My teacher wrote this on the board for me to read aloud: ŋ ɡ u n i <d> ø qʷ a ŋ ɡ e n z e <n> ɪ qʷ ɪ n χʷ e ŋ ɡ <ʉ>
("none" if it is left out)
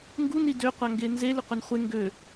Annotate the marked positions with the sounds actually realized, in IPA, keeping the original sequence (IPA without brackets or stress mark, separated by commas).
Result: d, l, ø